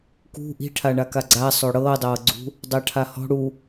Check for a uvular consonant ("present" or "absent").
absent